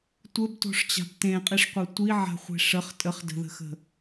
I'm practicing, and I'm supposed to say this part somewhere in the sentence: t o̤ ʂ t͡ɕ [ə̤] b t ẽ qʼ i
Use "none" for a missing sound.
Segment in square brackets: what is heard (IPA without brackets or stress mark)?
a̤